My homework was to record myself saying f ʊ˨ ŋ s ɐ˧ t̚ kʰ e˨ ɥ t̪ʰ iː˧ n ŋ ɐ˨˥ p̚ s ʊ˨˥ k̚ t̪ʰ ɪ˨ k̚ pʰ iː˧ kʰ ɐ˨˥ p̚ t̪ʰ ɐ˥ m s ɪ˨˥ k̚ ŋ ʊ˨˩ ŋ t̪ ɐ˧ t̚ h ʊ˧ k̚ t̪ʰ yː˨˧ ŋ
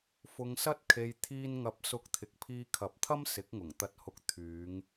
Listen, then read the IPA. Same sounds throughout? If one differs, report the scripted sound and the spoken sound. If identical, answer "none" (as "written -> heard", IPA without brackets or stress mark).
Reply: ɥ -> j